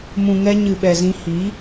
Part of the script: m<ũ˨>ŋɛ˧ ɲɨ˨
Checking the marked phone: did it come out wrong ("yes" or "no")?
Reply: no